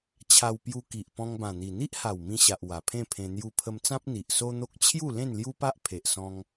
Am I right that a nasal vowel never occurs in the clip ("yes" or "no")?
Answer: no